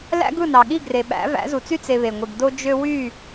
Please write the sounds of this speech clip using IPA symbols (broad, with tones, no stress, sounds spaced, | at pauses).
l æ̰˦ ɡ ɯ˦˨ n ɑ˨ ɠ i˦˨ ɡ r e˨ ɓ æ̰˨˦ v æ̰˨˦ z u˨ t͡s y˦ t͡s e˧ β e˨ ŋʷ i˨ ɡ d o˦ d͡ʒ ø˦ w y˦˨